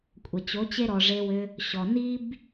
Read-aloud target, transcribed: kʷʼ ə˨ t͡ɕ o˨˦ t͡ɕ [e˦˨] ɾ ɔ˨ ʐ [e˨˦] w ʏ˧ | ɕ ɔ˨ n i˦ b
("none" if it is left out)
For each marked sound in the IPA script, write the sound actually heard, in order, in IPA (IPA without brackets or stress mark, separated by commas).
e˦, e˧